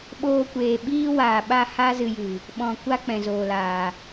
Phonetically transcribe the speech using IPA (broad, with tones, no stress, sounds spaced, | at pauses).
ɓ oː˧ kʷ eː˨ ɓ iː˦ w aː˨ ɓ a˦˨ h a˦ z ɨ˧ j ɨ˨ | ɓ ɔ̃˨ kʷ a˦ k͡p ɛ̃˨ z oː˨ l aː˨